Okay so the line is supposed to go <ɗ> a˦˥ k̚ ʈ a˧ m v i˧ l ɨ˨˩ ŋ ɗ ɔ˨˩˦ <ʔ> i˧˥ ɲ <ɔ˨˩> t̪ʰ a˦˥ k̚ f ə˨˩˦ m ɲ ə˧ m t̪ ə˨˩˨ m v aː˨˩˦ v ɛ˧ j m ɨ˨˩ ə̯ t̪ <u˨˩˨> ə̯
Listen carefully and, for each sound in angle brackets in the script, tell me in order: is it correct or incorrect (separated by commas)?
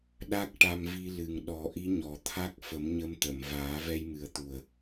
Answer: correct, correct, correct, incorrect